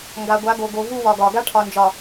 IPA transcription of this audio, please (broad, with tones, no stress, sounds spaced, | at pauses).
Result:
ŋ ɡ a˨ ɡʷ a˨˦ ɡ o˨ ɡ o˨ v u˦ w ɒ˨ ɡ ɒ˨ ɡ a˦ ʈʰ ɒ˨ n d͡ʒ ɒ˨